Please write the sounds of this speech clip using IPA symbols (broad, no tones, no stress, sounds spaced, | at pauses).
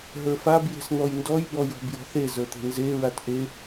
ɦ ə˞ f a b j e̤ s n̪ ɔ j n d ɔ j b ɔ j ɔ̤ b j ɔ̤ θ e z ə˞ t̪ e̤ n z e ɹ a t ʔ e